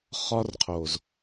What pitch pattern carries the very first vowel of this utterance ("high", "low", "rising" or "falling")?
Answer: high